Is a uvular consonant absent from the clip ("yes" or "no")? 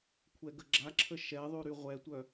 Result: no